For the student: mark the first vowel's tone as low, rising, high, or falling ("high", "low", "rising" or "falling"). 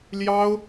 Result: high